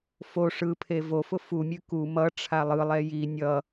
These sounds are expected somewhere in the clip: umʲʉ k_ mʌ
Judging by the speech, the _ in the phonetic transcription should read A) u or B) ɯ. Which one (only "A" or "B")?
A